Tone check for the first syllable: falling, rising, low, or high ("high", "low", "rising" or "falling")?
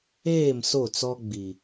falling